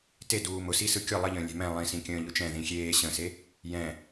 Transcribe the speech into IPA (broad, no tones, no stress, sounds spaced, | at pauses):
t e d uː m ʊ s i s ɯ kʲ ʊ lˠ ə ʎ ə̃ː lʲ ɛ̤ m ɛ̃ lˠ ĩ s ĩ kʲ ə̃ː ʎ ʊ t͡ʃ ɛ̃ ð ĩ xʲ eː ɕ ə̃ s e | j ɛ̃